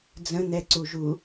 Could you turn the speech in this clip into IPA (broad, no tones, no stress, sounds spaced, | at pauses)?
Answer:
d͡z ə̃ n̪ ɛ ǀ u ʒ u